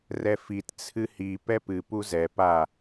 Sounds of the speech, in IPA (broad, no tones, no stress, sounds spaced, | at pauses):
r ɛ f i t t͡sʰ ɨ h i p ɛ p ɨ p u z ɛ p a